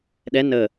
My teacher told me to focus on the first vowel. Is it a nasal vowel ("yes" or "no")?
no